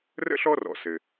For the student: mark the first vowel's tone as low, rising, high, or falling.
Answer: high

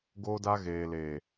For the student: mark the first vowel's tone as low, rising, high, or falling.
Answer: high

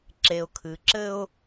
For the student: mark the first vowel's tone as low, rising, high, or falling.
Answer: low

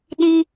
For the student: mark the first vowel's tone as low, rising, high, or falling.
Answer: high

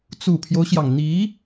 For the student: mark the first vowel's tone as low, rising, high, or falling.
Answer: low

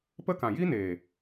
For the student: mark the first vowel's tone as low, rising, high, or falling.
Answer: high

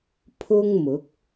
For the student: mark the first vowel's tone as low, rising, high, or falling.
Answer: high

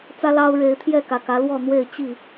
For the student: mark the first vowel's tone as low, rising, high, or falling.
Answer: high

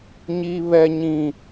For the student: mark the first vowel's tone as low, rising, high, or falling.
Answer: high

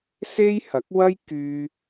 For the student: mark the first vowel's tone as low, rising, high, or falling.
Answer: high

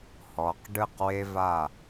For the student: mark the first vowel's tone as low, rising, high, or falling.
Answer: low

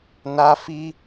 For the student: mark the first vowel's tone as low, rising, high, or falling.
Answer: high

